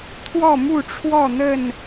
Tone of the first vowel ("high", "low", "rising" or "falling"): falling